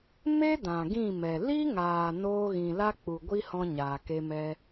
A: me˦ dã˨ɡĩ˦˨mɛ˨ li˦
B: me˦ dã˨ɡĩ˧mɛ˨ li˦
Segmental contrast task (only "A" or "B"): A